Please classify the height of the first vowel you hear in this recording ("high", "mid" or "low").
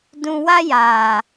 high